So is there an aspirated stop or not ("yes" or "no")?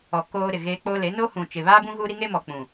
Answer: no